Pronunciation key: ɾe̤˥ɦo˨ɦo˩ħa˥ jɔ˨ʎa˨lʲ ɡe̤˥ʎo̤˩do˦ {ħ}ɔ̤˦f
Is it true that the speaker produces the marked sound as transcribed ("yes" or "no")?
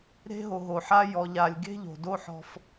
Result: yes